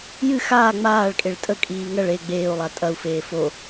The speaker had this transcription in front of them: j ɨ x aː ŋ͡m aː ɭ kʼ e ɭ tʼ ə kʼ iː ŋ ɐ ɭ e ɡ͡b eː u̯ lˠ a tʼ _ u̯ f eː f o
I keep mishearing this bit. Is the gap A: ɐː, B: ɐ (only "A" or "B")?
B